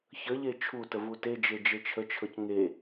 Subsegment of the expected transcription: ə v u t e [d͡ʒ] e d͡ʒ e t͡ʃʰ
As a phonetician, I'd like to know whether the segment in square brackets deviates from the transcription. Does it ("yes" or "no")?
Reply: no